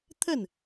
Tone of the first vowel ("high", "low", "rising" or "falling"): falling